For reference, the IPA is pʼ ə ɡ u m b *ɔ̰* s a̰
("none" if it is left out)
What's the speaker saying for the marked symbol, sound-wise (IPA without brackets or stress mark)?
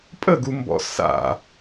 ɔ̰